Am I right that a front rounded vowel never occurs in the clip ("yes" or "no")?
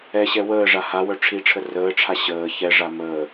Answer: no